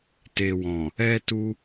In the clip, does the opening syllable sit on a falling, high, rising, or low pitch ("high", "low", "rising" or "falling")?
low